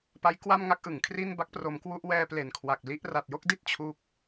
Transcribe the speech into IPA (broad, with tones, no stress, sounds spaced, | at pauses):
p a˦˥ j k w a˥˩ m ŋ a˦˥ k̚ ʔ ɯ˨˩ ŋ kʰ r i˥˩ n b a˦˥ k̚ p r o˧ m k w u˥˩ ʔ w ɛː˧ p l e˨˩ n kʰ w a˨˩ k̚ l i˦˥ ʔ r a˨˩ t̚ j o˥˩ k̚ d i˥˩ t̚ t͡ɕʰ u˦˥ k̚